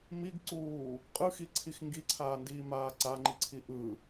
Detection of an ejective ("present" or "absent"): present